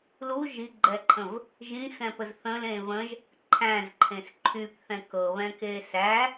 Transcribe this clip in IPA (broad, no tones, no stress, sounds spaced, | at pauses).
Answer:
l u ʒ i ɡ͡ǃ ɛ ǃʰ ə̃ v | ʒ ĩ x ɛ̃ p ə z θ ə̃ l ẽ v ə̃ ʒ | ǃʰ æ̃ z ǃʰ ẽ s ǃʰ y p θ ɛ̃ k ɤ β ɛ̃ k e s æ